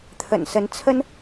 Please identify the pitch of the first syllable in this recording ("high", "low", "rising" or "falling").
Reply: low